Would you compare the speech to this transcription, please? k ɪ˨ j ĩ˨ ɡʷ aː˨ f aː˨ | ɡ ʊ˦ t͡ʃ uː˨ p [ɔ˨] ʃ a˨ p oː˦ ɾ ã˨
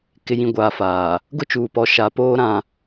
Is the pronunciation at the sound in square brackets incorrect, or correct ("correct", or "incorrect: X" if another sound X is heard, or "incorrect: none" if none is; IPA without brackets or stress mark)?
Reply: correct